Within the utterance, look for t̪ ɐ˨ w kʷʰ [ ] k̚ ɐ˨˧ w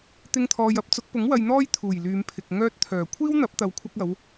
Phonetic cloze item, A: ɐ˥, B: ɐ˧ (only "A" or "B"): B